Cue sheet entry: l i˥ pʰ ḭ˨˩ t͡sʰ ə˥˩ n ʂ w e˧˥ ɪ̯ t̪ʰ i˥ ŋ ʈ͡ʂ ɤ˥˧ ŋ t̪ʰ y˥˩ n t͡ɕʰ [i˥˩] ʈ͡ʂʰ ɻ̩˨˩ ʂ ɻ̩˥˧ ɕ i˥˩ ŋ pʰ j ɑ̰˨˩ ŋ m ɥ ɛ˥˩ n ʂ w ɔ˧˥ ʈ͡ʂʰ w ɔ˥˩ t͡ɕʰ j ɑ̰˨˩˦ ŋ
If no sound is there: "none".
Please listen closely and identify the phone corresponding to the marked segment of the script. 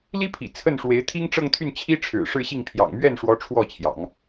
i˥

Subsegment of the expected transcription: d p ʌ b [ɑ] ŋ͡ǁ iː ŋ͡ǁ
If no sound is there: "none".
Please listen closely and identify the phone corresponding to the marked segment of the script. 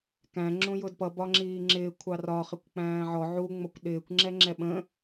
ɒ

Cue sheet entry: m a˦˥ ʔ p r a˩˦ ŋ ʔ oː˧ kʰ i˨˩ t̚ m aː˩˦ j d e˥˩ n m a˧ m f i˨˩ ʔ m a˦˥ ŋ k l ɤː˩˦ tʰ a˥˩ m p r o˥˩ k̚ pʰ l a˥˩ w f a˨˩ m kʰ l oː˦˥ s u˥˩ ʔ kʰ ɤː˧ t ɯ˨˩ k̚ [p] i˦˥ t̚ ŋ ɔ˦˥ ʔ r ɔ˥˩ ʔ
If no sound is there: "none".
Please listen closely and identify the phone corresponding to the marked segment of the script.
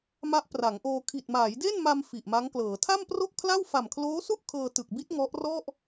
b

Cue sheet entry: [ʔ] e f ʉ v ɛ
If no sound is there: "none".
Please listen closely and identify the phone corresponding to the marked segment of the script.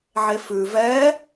ʕ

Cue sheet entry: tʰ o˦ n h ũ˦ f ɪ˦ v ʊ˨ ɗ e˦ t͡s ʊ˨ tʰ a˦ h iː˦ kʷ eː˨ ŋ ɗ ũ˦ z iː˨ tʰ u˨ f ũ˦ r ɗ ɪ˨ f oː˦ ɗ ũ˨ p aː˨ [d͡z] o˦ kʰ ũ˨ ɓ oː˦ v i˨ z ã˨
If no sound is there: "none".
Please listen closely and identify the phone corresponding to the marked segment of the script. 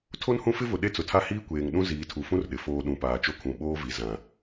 t͡ʃ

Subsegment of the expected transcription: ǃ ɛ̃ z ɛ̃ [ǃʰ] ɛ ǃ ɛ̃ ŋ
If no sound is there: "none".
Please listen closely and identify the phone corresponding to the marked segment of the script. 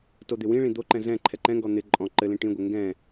ǃʰ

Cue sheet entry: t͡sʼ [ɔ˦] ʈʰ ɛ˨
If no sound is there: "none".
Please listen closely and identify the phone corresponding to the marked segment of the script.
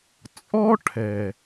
ɔ˦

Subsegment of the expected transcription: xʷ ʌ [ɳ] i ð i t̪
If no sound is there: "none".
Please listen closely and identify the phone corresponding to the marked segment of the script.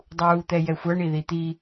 ɳ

